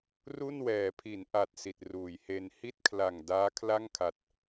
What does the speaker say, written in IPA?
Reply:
r u˥˩ n w ɛː˩˦ pʰ i˩˦ n ʔ a˨˩ t̚ s i˨˩ t̚ r uː˩˦ j h e˧ n h i˥˩ t̚ kʰ l a˨˩ ŋ d aː˦˥ kʰ l a˥˩ ŋ kʰ a˨˩ t̚

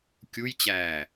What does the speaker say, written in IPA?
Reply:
kʲ u j t͡ɕ æː

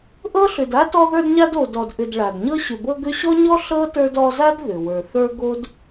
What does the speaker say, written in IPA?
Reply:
ʔ ɤ˥ ɬ ʏ˨ d a˥ t ɔ˦ ð ə˞˦ d ɲ a˦ d o˨ d ɔ˨ d ʔ ʏ˨ d ɭ a˩ d ɲ ɤ˦ ɕ ʏ˨ b ɤ˦ ɡ ʏ˦ ɕ ɔ˥ ɲ ɔ˥ ɬ ɤ˥ t ə˞˦ d ɔ˦ z a˥ d ð ʏ˩ w ə˞˩ θ ə˞˦ ɡ o˥ d

